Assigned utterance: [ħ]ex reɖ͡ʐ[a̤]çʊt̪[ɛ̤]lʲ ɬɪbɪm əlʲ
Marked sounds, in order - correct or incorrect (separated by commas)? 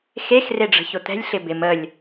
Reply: incorrect, incorrect, correct